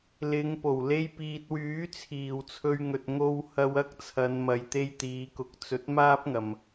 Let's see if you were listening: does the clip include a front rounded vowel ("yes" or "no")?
yes